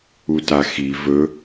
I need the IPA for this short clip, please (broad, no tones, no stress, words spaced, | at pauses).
utaxi vɵ